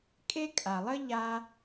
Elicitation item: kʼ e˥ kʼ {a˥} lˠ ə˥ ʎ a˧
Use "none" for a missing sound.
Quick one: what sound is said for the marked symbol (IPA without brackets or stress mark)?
a˩